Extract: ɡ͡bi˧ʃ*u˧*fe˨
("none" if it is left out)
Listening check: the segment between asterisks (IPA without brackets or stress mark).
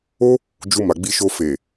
o˧